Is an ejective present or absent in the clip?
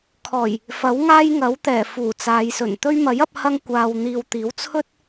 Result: absent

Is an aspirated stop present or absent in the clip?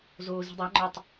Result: absent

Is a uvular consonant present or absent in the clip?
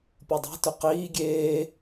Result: present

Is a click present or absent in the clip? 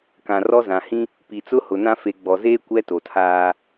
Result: absent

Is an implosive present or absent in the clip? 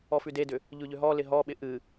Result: present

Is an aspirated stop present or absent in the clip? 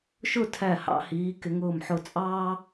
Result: present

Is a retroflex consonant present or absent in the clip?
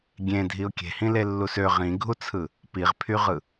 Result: absent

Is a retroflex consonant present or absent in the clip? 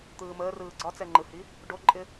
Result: present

